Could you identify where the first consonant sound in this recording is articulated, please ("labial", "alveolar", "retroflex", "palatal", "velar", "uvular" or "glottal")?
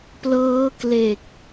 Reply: labial